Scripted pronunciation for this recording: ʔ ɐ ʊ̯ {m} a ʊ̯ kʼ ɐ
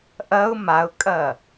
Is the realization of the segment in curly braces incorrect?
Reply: no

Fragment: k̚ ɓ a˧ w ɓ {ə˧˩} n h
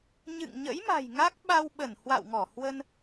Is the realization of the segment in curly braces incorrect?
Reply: no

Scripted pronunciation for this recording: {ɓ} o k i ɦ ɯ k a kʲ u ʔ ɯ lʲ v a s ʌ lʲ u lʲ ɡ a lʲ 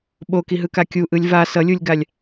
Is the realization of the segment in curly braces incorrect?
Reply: no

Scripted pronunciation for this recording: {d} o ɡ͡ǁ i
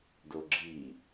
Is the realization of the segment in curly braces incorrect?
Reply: no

